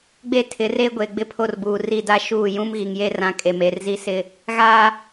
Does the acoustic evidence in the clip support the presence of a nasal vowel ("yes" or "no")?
yes